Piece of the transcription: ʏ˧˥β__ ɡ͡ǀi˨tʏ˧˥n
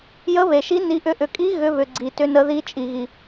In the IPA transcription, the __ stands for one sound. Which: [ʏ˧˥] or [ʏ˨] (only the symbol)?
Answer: ʏ˨